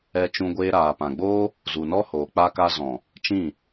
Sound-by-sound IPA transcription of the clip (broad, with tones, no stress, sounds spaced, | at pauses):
ɛ˧ t͡ʃ ũ˧ ɡʷ eː˧ ɾ aː˨ p ã˨ ɡ͡b oː˦ | z u˨ n ɔ˦ h oː˨ k͡p a˧ k a˧ z ɔ̃˨ | t͡ʃ ĩ˦˨